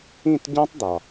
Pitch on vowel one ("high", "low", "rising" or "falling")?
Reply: falling